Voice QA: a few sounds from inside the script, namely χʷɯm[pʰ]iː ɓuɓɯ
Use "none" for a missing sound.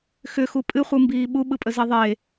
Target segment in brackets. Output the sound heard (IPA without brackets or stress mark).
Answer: b